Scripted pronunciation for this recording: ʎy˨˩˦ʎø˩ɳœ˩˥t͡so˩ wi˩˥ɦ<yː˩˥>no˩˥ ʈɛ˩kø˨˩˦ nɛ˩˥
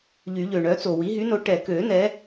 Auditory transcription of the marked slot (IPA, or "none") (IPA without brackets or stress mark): y˩˥